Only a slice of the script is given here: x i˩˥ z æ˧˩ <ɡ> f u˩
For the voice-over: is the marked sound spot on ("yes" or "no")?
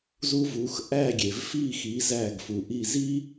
yes